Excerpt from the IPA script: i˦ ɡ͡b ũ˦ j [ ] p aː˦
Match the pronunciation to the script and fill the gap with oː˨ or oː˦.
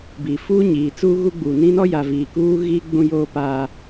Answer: oː˦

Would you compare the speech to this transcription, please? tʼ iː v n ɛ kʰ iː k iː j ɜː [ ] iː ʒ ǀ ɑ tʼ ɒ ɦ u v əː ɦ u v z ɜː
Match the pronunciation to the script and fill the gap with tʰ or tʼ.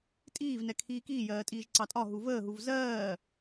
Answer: tʼ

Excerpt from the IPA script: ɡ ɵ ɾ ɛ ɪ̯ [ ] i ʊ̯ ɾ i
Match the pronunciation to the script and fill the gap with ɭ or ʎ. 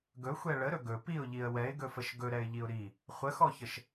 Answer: ʎ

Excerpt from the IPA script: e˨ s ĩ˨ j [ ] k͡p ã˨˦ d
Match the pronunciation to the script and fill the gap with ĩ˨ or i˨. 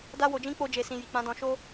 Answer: i˨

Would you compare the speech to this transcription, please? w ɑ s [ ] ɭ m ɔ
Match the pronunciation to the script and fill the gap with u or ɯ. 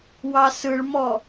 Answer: ɯ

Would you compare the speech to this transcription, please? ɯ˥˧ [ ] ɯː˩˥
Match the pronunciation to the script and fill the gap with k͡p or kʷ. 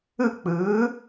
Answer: k͡p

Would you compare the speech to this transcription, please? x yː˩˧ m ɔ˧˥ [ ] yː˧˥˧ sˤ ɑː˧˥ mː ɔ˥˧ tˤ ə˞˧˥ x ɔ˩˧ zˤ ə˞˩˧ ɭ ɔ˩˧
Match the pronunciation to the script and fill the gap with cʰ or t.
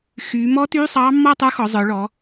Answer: t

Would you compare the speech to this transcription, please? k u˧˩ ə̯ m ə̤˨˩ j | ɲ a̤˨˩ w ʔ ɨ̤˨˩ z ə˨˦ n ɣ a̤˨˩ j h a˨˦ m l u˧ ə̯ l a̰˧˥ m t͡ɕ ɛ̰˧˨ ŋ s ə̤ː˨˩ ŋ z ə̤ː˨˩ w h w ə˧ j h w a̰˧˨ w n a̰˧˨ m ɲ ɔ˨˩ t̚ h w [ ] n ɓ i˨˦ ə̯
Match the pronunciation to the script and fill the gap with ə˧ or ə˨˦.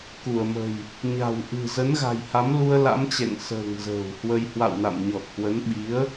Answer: ə˨˦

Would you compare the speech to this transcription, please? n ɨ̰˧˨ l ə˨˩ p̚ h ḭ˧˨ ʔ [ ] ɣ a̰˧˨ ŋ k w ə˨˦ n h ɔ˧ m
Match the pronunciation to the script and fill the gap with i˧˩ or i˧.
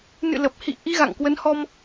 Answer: i˧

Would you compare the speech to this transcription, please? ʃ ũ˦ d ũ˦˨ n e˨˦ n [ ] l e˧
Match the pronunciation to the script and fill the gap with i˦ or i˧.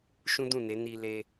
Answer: i˧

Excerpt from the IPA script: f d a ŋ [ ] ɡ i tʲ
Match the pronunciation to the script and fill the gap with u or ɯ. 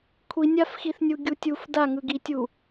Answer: ɯ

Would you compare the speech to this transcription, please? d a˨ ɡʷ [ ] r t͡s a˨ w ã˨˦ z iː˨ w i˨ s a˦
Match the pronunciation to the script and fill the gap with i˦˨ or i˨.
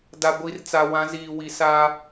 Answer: i˨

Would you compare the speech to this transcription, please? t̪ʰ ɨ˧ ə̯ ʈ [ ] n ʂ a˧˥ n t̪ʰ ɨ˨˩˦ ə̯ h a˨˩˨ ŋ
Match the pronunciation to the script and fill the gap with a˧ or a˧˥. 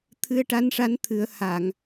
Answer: a˧˥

